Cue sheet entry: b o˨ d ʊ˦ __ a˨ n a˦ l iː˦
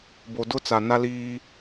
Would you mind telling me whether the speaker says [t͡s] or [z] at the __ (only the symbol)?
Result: t͡s